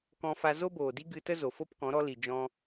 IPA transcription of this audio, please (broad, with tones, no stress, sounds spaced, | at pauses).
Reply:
k ɔ̃˧ f a˧ z o˦ b oː˨ d i˦ ɡ ɨ˧ t ə˦ z o˨ f o˦ p k ɔ̃˨˦ ɾ ɔ˧ l i˨ d͡ʒ ɔ̃˧